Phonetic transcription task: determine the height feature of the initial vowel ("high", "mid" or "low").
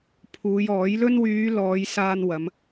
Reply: high